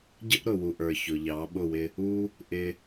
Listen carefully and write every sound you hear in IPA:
ɟə˦ʔɾʊ˨wu˨ʔə˞˨ çʊ˨ʎɑ˨˦ɓʊ˦˨wɪ˧ | u˦ | ʔɪ˧

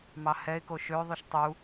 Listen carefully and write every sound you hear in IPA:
mɑhɛɪ̯ koʃø ðˤyʃtˤu

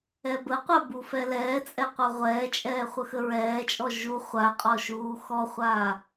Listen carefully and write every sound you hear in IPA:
ɛbəqʷa bufɛlɛːt͡sʼɛ qʷɜʁʷɛːt͡ʃʼɛː χʷəxəɹɛːt͡ʃʼɔ ʒu χʷaqʼɔ ʃuːxɔχʷaː

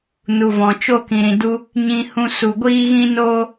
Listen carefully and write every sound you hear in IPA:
nu˨vɔ̃˨t͡ʃo˦ kĩ˨ɾĩ˨du˦ | ɲĩ˧hũ˧ su˨ɡʷiː˦ɣĩ˦noː˦

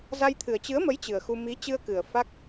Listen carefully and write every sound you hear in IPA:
za˧jt̪ʰɨ˨˩ə̯ t͡ɕɨ˨˦ə̯mə˨˦j t͡ɕɨ˨˩ə̯xu˧ mi˨˦t͡ɕɨ˧ə̯kɨ˨˩ə̯ fa˦˥k̚

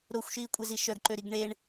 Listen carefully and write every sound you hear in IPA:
ɾoxʷʃiːkʷʼezi ʃœɡǃøɾiɡ ɳeɳ

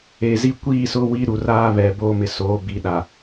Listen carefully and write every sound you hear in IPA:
eː˨zi˦ kʷiː˦˨sʊ˦ wi˦ɾu˨ raː˦βɛ˨ boː˦mɪ˨ soː˨˦bi˨ɗa˨

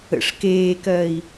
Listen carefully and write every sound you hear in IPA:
ə̰ʂ keːkɜi̯

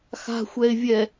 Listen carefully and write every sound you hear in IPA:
xa̤xʷɛɪ̯vʲɛ

